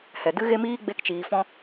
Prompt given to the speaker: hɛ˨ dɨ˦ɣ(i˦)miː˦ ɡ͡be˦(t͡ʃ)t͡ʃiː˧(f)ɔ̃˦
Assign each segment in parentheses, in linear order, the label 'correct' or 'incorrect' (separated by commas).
incorrect, incorrect, correct